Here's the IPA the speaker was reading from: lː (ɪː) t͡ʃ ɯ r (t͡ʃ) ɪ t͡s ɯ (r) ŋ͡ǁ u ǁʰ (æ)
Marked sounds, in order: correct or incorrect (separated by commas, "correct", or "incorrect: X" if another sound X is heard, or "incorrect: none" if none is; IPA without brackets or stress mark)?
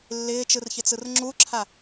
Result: correct, incorrect: ç, correct, incorrect: a